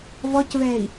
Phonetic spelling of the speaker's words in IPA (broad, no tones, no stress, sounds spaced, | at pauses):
v ɔ c v ɛː i̯